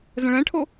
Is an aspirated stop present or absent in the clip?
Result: present